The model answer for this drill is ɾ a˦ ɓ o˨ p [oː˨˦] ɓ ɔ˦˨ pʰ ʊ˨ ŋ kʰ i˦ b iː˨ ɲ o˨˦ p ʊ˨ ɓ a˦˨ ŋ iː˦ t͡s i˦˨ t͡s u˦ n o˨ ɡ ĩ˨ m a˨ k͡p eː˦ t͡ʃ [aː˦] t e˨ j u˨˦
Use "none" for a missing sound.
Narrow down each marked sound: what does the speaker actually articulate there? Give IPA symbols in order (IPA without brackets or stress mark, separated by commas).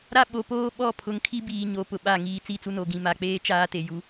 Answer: oː˦, aː˦